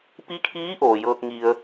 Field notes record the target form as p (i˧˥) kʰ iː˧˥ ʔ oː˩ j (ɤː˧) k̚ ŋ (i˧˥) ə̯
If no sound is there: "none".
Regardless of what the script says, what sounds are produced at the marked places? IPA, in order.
i˧˥, ɤː˧, i˧

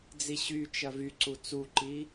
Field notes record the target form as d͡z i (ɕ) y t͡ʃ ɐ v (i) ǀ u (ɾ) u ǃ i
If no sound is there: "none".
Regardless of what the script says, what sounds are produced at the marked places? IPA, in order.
ɕ, y, t͡s

